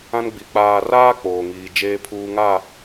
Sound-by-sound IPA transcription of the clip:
ã˦ n ɡ͡b i˨ k͡p aː˨ r aː˦ k͡p oː˨ ŋ iː˦ d͡ʒ eː˦ pʰ uː˦ ŋ a˦˨

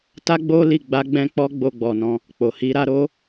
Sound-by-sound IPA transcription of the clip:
t a˦ ɡ͡b o˦ l i˦˨ ɡ͡b a˧ ɡ͡b ɛ̃˧ k͡p ɔ˧ ɡ͡b o˧ ɡ͡b ɔ˨ n ɔ̃˧ | k͡p o˨ h i˧ ɾ a˧ ɾ o˦

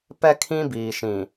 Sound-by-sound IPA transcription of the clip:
p ɛ˦ kʰ ĩ˦ b iː˨ ʃ ĩ˨

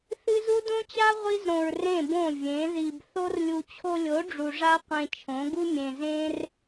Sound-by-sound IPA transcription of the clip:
θ ɨ˦ z u˦ d õ˦ t͡ɕ a˦ ʁʷ i˦ z ɾ õ˧ ɹ r ẽ˦˨ b õ˦˨ vʲ ẽ˨˦ ð i˧ b θ o˦ r lʲ u˧ t͡ɕʰ o˧ lʲ o˨˦ ɖ͡ʐ u˨ ʐ a˦ qʷ ẽ˧ t͡ʃʰ õ˨˦ ɡ u˦ mʲ ẽ˧ z ẽ˦ r

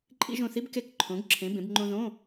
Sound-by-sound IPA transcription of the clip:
ǃʼ ḭ˧ ʒ õ˧˩ θ i˧˥ b k e˧˩ k ǃʰ õ˩˧ ɡ ǁʰ ẽ˩˧ b ẽ˩˧ b ŋ͡ǃ õ˧ ð õ˧˥˧

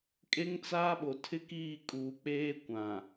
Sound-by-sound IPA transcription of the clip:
kʼ e˦ ŋ t͡s aː˦ ɓ o˨ tʰ ɪ˦ k iː˦˨ kʼ uː˨ k͡p eː˦ kʷ ã˨

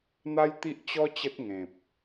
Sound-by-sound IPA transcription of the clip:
n̪ a˦ j t̪ i˦ ʔ t͡ɕ ɔ˦ t͡ɕ ə˦ t̚ ŋ ẽ˨ p̚

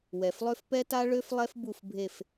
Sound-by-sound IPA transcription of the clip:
w ɛ˨˩ f lˠ ø˥ f p ɛ˥ t a˥ ɭ ø˥ f lˠ ɛ˥ f b u˦˨ f bʱ e˦˨ f

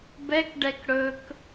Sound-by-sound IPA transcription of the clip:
b ɛ k ɖ ɛ k ɽ ɵ k

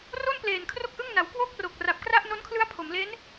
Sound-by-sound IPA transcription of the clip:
r o˥˩ n p l eː˨˩ n kʰ r o˥˩ k̚ ʔ ɯ˥˩ ŋ n a˩˦ w k w o˥˩ k̚ r o˨˩ k̚ r a˨˩ p̚ k r a˥˩ ʔ n o˦˥ n kʰ l ɯ˦˥ a̯ pʰ o˩˦ m l e˦˥ n

